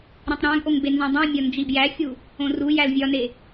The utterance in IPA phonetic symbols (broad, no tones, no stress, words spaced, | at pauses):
ɾĩtˤɾæ̃ɡʔoŋ benzõdˤĩmʲɒ nd͡ʒibjæxʲu | õrujæl vʲɒne